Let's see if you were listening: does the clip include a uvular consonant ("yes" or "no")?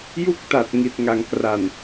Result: no